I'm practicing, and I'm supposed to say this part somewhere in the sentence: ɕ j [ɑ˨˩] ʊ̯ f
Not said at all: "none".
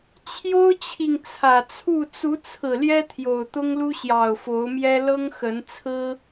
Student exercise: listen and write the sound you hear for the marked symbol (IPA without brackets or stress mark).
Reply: ɑ˨˩